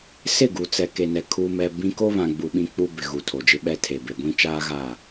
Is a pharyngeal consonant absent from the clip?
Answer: yes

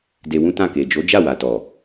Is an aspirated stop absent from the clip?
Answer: yes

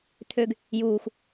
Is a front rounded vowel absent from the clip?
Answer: no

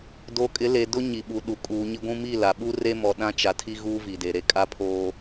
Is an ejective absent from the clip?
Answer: no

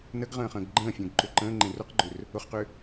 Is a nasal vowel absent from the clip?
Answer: no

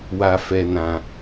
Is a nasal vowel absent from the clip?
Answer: no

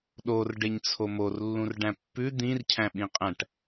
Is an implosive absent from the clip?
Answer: no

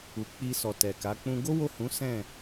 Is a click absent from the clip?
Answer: yes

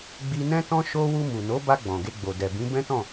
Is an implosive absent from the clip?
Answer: yes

